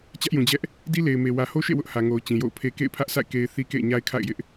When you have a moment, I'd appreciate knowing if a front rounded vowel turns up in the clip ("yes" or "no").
no